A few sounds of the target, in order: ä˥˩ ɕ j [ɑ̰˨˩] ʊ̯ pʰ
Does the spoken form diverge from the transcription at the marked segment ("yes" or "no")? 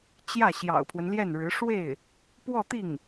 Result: no